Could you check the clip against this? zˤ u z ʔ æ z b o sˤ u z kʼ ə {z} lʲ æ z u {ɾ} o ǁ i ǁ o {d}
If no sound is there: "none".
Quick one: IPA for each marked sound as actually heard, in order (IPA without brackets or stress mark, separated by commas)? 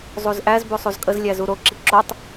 z, ɾ, tˤ